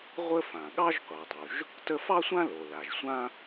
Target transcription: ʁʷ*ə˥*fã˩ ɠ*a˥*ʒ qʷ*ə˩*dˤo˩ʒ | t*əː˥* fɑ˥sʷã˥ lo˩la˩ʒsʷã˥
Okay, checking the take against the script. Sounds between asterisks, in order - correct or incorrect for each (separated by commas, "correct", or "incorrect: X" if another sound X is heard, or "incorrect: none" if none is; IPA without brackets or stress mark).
correct, incorrect: ɑ˥, incorrect: ɑ˩, incorrect: ə˥